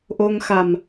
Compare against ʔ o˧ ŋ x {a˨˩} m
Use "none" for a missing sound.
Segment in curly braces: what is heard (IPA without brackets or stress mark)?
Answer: a˨˩